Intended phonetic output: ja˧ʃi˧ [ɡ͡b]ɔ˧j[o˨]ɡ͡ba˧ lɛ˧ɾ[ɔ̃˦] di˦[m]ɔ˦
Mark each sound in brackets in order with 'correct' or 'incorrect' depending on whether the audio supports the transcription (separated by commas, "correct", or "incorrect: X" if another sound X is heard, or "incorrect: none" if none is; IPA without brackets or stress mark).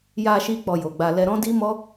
incorrect: k͡p, correct, correct, correct